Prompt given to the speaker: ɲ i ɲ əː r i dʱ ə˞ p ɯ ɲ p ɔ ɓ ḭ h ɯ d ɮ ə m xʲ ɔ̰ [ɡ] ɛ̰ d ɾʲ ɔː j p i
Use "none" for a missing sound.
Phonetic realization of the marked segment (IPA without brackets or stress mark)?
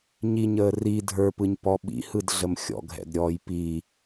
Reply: ɡʱ